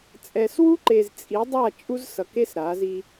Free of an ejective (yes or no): no